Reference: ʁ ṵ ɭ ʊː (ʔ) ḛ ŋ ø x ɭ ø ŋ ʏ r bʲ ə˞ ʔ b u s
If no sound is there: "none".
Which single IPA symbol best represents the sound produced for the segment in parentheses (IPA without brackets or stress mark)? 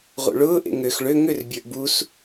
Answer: ʔ